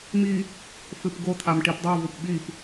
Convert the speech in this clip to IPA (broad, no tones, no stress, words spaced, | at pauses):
mi | fɨpɡot̪ʰam ʈipdˤovup ɓip